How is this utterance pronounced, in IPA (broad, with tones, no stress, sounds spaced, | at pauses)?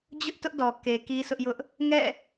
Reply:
d͡ʑ ʊ˦ ʔ t ʊ˦ ʔ d ɔ˨ k e˨ k i˦ sʰ ʊ˦ ʔ j ʊ˦ ʔ | ŋ ɛ̰˦˨